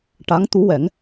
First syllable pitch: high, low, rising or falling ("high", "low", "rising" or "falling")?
rising